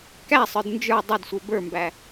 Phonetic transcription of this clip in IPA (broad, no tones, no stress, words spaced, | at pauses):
kæsˤə˞d nd͡ʒə˞ dˤɐdsʷə˞ bə˞mbæ